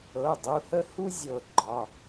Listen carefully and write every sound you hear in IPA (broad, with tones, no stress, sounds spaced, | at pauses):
ɤ˩˧˩ dˤ u˩˧˩ h ə˦ h u˦ zʲ ɤ˧˩ ɡ͡ǃ ɒ˩˧˩